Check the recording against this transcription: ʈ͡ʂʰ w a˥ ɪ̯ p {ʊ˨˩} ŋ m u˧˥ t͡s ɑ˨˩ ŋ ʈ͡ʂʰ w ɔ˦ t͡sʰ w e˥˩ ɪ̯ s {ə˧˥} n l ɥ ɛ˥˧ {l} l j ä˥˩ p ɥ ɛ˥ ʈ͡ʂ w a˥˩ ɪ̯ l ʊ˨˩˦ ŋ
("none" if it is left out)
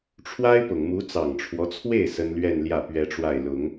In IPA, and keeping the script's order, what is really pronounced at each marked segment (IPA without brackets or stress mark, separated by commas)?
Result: ʊ˨˩, ə˥, n